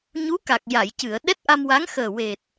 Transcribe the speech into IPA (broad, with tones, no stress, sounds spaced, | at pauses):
ɲ u˧˥ k a˨˩ k̚ j a˨˩˨ j c ɨ˨˩˨ ə̯ ɗ ɛ˦˥ t̚ ʔ a˧ m w a˧˥ ŋ x əː˨˩ w e˨˩ t̚